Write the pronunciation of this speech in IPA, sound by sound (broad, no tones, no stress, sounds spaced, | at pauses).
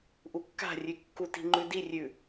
ʔ u kː a̤ rʲ ʉ kː u t i̤ ŋ͡ǃ ʉ d i rʲ ʉ